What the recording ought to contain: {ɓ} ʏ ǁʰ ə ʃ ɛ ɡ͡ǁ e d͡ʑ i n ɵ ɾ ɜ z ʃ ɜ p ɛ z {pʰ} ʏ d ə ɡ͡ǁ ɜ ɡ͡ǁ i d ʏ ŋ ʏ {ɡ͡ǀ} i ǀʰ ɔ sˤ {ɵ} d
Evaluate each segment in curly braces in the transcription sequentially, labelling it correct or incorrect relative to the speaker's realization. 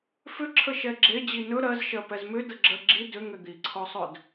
incorrect: f, incorrect: m, incorrect: d̪, correct

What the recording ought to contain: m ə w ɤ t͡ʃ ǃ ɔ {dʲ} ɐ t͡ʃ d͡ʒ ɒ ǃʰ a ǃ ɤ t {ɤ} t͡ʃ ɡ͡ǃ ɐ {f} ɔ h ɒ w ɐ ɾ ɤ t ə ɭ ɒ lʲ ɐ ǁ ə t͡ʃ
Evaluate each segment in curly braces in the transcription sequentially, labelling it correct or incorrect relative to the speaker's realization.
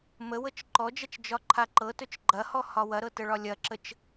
incorrect: d͡ʒ, incorrect: ɵ, incorrect: h

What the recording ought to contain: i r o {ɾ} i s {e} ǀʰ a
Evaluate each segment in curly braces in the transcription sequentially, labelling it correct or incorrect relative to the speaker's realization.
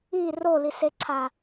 incorrect: l, correct

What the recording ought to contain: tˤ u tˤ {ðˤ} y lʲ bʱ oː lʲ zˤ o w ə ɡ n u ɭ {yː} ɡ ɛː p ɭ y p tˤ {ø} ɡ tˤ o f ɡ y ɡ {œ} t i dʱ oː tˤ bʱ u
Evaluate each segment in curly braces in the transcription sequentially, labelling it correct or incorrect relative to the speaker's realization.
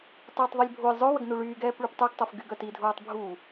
correct, correct, correct, correct

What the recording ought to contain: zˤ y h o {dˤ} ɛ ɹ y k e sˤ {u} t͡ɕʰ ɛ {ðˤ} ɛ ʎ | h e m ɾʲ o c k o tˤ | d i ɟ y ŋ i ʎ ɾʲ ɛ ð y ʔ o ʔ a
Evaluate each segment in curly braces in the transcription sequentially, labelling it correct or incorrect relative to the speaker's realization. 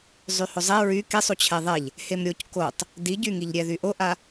incorrect: zˤ, correct, correct

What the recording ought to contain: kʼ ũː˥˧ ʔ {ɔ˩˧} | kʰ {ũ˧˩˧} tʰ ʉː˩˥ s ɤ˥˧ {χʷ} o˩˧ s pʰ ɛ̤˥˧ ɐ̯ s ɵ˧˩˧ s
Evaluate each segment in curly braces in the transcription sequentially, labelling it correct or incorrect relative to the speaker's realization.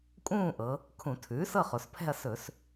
incorrect: ɤ˩˧, correct, incorrect: χ

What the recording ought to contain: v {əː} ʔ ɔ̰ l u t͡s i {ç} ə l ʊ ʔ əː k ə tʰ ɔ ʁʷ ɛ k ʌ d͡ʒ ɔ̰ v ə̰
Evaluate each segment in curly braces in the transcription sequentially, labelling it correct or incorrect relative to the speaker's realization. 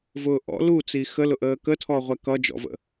incorrect: ʊː, incorrect: x

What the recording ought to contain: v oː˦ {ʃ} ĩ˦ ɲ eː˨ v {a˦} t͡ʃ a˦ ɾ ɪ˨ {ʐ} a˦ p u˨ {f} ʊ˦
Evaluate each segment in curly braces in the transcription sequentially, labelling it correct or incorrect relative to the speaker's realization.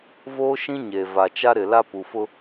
correct, incorrect: a˨, incorrect: l, correct

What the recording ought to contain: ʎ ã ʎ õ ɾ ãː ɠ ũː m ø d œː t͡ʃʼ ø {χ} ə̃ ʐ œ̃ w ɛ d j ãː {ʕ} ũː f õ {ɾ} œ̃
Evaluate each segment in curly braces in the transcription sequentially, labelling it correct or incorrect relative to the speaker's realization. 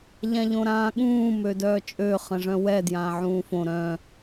correct, correct, correct

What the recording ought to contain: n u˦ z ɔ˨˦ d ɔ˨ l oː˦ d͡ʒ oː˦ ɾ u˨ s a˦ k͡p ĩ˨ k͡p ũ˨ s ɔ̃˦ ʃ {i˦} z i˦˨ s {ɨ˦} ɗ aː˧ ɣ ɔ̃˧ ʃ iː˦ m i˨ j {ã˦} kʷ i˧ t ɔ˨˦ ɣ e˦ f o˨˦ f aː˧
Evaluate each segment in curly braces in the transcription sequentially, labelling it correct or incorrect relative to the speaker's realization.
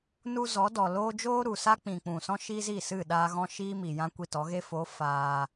correct, incorrect: ɨ˦˨, correct

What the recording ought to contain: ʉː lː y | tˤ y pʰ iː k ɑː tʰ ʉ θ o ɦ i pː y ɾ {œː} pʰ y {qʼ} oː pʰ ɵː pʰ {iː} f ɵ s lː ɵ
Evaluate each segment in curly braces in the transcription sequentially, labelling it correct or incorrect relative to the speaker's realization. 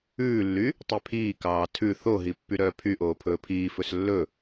correct, incorrect: ʔ, correct

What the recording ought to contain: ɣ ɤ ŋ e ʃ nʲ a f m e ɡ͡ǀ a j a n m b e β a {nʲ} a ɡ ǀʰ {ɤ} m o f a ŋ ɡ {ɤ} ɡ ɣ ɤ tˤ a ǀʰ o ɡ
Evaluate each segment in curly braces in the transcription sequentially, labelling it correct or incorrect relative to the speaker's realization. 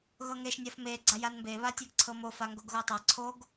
incorrect: tʲ, correct, incorrect: o

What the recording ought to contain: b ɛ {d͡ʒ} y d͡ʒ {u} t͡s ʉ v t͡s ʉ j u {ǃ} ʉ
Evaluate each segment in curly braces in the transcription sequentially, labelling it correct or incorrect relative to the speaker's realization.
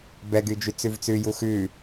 incorrect: ɡ, incorrect: y, incorrect: x

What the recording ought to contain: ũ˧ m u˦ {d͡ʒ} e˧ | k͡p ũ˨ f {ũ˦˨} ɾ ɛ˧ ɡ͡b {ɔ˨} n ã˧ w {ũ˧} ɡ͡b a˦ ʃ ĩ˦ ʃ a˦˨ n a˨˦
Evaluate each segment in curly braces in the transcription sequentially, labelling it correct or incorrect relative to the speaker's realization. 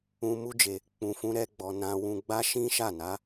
correct, incorrect: ũ˧, correct, correct

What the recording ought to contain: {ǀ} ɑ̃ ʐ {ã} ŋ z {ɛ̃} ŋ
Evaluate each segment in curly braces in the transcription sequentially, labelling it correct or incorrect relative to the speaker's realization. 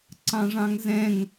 correct, incorrect: ɑ̃, correct

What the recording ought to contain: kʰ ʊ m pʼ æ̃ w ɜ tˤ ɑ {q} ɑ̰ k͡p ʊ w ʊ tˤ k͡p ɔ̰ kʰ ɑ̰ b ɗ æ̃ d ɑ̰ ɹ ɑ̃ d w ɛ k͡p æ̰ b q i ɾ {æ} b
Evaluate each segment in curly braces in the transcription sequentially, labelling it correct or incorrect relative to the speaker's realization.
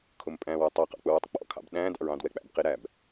correct, correct

